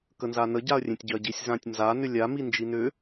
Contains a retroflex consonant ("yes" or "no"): no